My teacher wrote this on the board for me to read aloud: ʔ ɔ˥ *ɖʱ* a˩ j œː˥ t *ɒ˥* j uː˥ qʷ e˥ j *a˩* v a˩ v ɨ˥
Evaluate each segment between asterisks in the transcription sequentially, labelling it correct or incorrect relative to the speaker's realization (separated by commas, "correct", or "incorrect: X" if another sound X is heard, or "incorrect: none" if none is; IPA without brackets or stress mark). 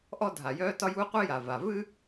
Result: incorrect: dʱ, correct, correct